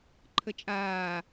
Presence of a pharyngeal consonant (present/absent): absent